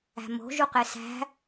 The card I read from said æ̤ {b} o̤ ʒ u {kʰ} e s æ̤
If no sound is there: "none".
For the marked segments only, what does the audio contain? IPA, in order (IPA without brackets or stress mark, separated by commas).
m, q